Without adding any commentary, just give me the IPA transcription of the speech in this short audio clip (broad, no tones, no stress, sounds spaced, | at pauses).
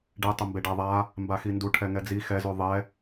ɖ e tˤ ə m b e ɖ a ðˤ a | m b a x i n d u ʈʰ ɛ ŋ ɛ d͡z i x ɛ z ʉ ðˤ ɛ